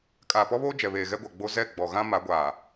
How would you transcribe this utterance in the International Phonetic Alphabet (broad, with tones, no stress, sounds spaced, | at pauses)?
kʼ aː˨ p ɔ˦ β oː˦ d͡ʒ ɛ˨ β eː˨ ɣ ɛ˦ ɡʷ a˨ ɡ͡b o˦ z ɛ˦˨ ɡ͡b ɔ˨ ɣ ã˦ m a˨˦ ɡʷ aː˨